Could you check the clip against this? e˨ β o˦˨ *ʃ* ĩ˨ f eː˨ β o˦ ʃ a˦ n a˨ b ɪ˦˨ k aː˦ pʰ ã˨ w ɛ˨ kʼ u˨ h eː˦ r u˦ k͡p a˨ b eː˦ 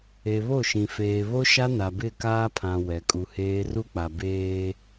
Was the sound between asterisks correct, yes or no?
yes